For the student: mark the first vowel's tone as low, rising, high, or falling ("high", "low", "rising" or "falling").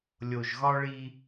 low